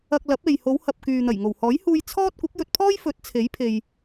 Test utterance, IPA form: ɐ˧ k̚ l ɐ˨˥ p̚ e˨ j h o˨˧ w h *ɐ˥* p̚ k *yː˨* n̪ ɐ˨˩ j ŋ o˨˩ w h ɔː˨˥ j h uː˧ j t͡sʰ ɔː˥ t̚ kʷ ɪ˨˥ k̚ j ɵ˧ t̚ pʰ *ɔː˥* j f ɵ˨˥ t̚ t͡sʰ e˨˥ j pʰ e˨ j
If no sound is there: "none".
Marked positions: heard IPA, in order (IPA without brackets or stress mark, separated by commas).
ɐ˨, yː˨, ɔː˥